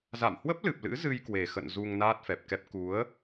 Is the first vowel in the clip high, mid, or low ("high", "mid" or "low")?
low